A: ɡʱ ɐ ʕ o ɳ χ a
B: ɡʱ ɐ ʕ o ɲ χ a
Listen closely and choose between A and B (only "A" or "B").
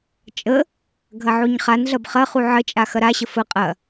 B